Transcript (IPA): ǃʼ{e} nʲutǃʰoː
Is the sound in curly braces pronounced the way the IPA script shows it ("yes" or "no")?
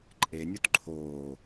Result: yes